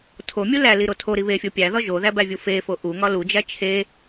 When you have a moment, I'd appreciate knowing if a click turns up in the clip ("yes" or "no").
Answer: no